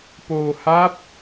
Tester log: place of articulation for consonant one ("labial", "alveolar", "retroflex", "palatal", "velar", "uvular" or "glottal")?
labial